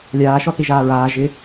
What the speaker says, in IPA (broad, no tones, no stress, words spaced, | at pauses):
lʲaːʃɔθiʒaː ɹaː ʒɪ